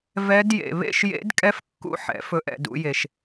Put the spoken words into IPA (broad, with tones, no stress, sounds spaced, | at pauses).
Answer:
v ɛ˦˥ d j ḛ˧ β ḛ˥˧ ʃ j ḛ˦˥ d kʼ ɛ˦˥ f kː ṵ˦˥ ħ ɛ̰˩˥ f ɵ˧ ʔ ɛ̰˧ d ṵ˩˥ j e˧ ʃ